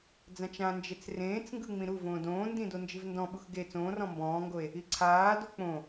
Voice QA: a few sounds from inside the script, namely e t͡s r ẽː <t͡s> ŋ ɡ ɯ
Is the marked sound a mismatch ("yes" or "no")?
no